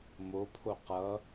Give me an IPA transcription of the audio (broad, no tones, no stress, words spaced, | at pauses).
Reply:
mopʰo qʌ